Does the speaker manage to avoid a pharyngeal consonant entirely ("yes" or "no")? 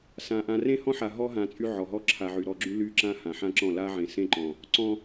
no